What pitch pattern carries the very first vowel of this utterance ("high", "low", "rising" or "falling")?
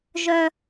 high